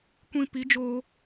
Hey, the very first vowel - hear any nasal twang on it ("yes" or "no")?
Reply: yes